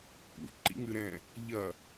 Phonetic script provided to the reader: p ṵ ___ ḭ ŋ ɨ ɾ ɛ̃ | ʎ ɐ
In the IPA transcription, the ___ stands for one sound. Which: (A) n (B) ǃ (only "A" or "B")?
B